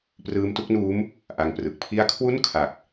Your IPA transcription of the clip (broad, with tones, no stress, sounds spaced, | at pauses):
p r ɯː˦˥ m t u˦˥ k̚ n uː˦˥ m | ʔ a˧ ŋ p r ɯ˨˩ k̚ pʰ i˥˩ a̯ kʰ w u˥˩ n kʰ a˨˩ k̚